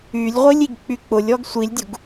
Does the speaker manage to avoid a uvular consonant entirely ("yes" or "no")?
no